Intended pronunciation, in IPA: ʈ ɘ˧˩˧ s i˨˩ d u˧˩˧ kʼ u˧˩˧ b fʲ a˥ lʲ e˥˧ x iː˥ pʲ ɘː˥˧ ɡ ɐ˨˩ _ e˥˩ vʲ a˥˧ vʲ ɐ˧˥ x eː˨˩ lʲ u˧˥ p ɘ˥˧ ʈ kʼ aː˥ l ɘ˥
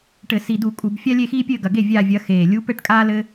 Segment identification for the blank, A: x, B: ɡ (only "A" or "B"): B